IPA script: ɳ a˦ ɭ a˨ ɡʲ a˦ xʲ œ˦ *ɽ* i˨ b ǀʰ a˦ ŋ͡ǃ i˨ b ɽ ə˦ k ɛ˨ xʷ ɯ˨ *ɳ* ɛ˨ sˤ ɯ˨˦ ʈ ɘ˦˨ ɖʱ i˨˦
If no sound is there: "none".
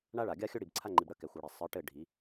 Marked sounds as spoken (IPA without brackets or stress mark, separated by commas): ɽ, ɽ